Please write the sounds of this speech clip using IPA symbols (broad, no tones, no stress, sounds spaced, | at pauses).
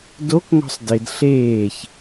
d o k ŋ ɔ̤ sˤ d ɪ d ɬ eː ç